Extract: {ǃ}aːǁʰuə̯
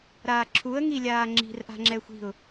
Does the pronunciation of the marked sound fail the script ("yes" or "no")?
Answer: yes